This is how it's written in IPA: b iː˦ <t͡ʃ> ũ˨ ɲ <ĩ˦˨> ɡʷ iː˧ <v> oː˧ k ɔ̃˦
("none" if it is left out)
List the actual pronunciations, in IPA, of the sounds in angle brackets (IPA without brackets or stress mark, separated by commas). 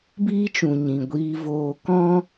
t͡ʃ, ĩ˨, v